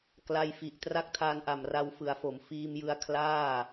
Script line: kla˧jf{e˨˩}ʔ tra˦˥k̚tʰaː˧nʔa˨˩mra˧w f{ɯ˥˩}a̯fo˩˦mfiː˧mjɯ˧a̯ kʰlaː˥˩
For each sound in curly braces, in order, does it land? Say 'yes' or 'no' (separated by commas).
no, no